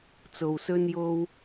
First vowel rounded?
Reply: yes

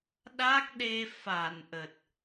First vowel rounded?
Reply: no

